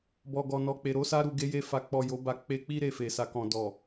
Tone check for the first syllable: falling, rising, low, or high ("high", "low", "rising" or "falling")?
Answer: low